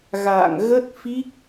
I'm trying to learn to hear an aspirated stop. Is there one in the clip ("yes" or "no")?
no